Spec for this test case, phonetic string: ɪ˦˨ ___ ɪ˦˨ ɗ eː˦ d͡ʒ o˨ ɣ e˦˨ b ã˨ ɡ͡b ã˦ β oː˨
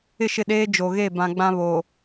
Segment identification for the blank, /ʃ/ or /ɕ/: ʃ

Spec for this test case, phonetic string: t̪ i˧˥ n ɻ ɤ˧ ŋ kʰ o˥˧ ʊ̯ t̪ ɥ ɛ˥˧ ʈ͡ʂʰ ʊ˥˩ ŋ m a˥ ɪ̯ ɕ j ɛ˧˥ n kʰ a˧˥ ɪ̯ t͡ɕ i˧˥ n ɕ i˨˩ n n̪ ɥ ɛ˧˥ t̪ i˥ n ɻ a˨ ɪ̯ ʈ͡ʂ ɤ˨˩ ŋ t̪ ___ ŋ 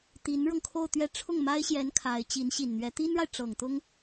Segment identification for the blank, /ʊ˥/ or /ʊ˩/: ʊ˥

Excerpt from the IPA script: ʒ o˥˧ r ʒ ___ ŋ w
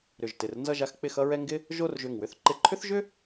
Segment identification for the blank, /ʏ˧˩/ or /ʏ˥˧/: ʏ˧˩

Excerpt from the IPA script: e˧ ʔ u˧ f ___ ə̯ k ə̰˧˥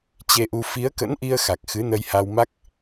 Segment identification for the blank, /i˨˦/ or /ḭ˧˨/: i˨˦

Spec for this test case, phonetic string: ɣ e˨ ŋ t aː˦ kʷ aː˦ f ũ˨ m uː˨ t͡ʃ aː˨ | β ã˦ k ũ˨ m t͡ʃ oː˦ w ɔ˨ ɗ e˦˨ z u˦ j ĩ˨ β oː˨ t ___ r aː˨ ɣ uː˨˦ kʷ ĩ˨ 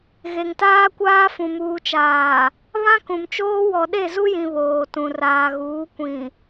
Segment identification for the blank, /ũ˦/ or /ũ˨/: ũ˨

